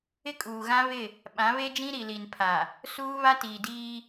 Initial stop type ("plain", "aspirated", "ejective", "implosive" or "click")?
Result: ejective